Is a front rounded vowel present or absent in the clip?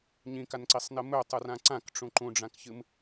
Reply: absent